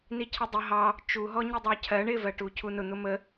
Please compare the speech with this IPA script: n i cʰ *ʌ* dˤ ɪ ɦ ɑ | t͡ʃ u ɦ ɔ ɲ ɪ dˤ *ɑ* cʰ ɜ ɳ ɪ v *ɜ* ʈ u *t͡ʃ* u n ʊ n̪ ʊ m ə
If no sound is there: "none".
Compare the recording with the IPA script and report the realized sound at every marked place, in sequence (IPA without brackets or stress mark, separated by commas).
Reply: ə, ɑ, ɜ, cʰ